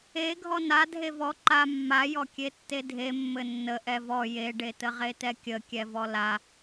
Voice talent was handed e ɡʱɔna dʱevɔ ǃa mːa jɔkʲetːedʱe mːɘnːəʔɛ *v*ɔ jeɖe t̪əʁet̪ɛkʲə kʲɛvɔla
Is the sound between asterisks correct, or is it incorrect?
correct